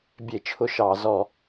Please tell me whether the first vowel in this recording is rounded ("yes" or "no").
no